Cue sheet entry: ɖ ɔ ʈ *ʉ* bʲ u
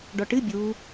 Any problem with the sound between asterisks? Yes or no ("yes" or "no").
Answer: yes